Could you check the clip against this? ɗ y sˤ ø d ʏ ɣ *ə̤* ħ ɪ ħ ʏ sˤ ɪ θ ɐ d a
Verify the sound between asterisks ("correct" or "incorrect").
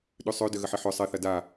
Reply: incorrect